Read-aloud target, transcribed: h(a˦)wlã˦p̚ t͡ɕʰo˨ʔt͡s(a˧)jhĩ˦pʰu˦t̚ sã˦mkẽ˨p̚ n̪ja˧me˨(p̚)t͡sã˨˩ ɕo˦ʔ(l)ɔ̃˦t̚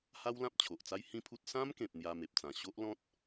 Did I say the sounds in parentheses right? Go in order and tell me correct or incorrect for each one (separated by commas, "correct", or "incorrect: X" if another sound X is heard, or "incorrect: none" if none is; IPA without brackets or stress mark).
correct, incorrect: a˦, correct, correct